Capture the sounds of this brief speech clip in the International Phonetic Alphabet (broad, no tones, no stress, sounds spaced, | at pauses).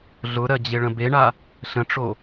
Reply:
ɮ ʊ ɾ ɜ d͡ʑ e ɭ ə̃ b e ɳ a | ɬ ə̃ ʈ͡ʂ o